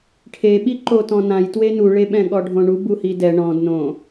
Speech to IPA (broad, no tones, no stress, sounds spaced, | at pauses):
ʈʰ e ɓ i ǃ o t ɔ̃ n ã j t w e n u ɭ e ɓ ɛ̃ ɠ ɔ ɖʱ õ ɳ u b u h i d ɛ ɳ ɔ̃ d n õ